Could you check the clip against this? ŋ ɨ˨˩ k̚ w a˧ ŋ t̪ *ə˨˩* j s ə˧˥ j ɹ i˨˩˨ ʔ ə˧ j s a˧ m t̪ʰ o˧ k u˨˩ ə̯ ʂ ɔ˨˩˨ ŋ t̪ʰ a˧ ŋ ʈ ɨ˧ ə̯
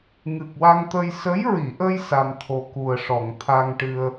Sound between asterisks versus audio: incorrect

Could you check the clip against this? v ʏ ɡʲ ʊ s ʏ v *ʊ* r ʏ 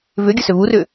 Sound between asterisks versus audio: incorrect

